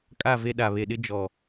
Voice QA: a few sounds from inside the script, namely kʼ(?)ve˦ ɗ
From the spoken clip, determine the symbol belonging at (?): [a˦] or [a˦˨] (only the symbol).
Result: a˦˨